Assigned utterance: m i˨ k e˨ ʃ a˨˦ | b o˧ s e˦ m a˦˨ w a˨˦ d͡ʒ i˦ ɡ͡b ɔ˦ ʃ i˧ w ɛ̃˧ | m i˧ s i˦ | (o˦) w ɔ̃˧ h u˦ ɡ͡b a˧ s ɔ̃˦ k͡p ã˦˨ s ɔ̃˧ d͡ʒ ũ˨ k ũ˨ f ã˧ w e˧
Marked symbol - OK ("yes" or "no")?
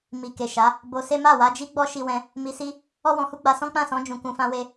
no